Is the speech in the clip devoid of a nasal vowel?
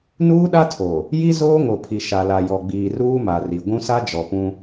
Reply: no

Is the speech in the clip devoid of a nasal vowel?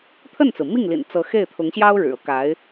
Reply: yes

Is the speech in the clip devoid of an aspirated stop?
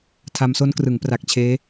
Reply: no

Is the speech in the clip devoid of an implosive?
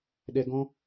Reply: no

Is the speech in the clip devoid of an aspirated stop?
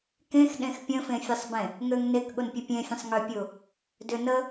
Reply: yes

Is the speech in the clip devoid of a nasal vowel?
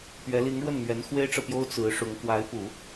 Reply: yes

